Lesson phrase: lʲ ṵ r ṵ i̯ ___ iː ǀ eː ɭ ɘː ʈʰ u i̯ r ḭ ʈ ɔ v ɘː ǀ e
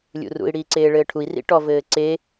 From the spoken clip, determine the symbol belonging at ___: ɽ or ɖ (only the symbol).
ɽ